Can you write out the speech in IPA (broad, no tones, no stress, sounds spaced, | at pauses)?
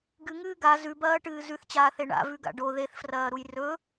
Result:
ɡ ɨ ŋ ɨː ɡ a z ʉ b ɐː ʈ ɨː z ʉ θ t͡ɕ aː θ e ɳ a̰ v ʉ ɡ a̰ ɖ o ð e θ f r ɐː ɾ u j r ɵ